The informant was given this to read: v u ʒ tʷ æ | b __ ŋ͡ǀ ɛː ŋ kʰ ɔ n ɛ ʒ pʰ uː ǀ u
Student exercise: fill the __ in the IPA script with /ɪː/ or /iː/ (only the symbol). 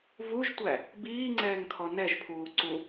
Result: iː